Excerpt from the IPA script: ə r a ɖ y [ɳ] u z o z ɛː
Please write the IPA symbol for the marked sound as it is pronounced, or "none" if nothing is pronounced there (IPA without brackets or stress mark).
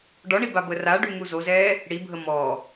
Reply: ŋ